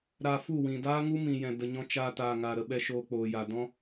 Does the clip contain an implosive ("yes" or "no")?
yes